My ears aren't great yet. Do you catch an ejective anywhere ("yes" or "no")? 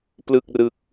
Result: no